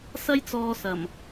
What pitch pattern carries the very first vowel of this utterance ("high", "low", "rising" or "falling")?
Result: high